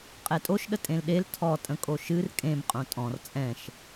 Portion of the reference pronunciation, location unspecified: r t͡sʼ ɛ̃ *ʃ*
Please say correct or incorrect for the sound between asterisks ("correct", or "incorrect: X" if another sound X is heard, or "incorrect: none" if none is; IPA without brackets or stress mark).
correct